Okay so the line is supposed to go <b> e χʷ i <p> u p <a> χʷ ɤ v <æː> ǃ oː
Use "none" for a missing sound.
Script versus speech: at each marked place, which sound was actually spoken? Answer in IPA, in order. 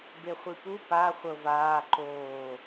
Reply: b, p, a, aː

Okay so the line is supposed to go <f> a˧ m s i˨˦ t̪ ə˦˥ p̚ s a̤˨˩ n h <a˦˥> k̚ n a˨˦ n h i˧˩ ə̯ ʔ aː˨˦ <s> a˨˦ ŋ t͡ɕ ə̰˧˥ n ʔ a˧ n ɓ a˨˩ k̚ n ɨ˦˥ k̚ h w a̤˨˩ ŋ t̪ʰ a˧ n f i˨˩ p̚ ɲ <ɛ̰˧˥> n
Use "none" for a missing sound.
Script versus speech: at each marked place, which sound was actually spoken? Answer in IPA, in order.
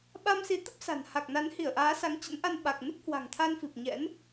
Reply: ɓ, a˨˩, s, ɛ̰˧˥

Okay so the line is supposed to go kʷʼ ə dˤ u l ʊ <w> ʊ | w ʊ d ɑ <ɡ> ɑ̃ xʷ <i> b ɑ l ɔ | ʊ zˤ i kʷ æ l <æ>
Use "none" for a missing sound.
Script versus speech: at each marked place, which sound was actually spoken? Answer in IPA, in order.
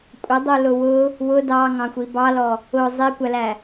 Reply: w, ŋ, i, æ

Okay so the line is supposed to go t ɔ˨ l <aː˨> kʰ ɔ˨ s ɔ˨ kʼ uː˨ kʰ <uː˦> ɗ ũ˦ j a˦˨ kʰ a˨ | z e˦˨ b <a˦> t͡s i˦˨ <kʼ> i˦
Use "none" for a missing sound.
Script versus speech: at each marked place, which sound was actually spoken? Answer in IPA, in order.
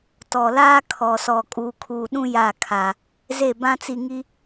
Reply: aː˦, uː˨, ã˦, ŋ

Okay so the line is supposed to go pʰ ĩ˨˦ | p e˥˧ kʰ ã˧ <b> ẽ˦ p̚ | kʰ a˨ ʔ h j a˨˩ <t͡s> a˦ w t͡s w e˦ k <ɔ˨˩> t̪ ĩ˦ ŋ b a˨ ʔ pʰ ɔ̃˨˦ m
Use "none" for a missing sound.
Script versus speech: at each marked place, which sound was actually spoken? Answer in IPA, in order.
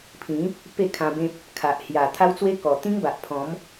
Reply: b, t̪ʰ, ɔ˨˩

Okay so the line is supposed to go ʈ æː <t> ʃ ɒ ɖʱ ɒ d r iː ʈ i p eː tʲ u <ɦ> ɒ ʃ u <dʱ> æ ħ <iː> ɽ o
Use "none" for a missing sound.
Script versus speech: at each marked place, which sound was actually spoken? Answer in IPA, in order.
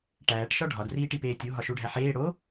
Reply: ʈ, ɦ, ɖʱ, eː

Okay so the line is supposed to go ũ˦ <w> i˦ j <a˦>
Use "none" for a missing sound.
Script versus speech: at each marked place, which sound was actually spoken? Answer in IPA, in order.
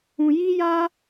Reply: j, a˦

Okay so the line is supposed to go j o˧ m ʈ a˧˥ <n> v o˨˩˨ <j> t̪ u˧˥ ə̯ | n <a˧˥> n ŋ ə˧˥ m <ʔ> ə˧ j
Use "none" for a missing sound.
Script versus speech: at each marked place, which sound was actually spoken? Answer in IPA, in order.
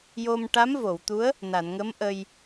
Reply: m, w, a˨˩˨, ʔ

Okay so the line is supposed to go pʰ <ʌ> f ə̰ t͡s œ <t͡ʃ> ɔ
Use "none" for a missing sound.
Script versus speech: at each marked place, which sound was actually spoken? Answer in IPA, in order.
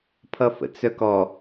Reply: ʌ, k

